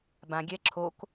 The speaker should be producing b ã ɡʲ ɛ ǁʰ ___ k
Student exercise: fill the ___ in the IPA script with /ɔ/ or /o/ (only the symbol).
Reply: o